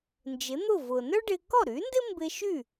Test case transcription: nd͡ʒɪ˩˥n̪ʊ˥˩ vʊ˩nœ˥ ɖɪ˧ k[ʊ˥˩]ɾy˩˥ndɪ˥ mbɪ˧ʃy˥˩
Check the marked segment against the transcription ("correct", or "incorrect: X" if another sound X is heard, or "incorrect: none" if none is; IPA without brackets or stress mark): incorrect: ɔ˥˩